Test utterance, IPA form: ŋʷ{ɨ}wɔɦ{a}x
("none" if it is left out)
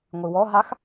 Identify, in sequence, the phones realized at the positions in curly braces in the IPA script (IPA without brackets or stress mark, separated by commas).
ɨ, a